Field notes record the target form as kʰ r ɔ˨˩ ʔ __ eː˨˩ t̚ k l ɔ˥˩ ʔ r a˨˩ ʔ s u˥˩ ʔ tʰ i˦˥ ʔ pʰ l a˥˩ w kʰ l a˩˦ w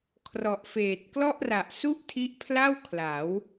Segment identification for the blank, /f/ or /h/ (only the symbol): f